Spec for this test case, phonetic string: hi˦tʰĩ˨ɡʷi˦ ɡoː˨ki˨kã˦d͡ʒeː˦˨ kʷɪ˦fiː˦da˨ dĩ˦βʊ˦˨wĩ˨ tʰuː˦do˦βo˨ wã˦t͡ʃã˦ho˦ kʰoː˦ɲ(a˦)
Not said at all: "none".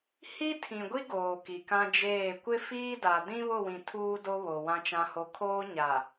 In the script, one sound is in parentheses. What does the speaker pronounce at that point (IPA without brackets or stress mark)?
a˨